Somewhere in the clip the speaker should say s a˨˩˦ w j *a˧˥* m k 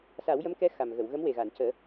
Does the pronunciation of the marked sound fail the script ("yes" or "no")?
yes